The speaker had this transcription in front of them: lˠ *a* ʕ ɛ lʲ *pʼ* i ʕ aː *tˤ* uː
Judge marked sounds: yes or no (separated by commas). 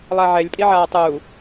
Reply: yes, yes, yes